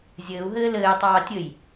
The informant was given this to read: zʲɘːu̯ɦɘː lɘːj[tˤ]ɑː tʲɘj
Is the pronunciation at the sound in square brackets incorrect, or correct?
correct